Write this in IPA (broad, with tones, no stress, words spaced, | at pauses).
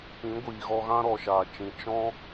pĩ˨˦ɡʷiː˨ɣɔ˧ ɣã˦ɾɔ˨ʃaː˨t͡ʃĩ˨ t͡ʃɔ̃˦